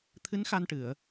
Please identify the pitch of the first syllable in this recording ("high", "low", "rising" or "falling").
rising